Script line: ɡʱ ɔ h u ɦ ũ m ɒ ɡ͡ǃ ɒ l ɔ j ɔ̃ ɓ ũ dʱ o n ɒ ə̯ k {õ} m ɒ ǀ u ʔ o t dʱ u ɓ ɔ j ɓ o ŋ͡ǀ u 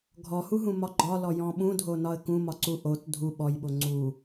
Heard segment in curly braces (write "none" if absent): ũ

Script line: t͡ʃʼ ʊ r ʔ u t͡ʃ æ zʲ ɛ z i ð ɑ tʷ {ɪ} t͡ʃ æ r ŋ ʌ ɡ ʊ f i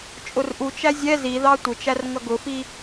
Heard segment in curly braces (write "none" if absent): ɪ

